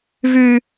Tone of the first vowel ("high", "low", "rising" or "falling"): low